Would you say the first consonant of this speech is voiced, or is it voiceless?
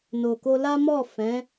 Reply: voiced